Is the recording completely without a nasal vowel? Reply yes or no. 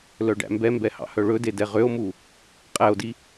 yes